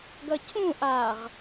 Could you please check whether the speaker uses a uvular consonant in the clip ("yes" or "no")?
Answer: yes